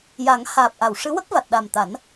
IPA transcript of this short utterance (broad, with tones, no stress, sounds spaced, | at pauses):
j a˨˩˦ ŋ h aː˨˩ p̚ ʔ a˨˩˨ w ʂ ɨ˧˥ w ə˦˥ k̚ v a˨˩ t̚ ɗ a˨˩ m t̪ a˨˩˦ n